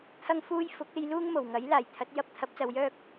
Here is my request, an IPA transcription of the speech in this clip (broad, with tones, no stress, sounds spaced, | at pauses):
t̪ʰ ɐ˥ ŋ f uː˥ j f ʊ˨˥ k̚ e˨˧ j l uː˥ ŋ m o˨˩ w ŋ ɐ˨˥ j l aː˨˩ j t̪ʰ ɐ˨˥ t̚ j ɐ˥ p̚ t̪ʰ ɐ˨˥ p̚ t͡s ɐ˨˧ w j œː˥ k̚